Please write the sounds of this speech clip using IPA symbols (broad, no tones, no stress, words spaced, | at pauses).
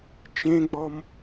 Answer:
t͡ʃẽɡ͡bɔm